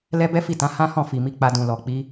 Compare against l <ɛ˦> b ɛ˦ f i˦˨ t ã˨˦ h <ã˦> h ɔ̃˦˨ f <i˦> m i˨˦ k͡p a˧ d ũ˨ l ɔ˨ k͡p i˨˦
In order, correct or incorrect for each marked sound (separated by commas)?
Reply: correct, correct, incorrect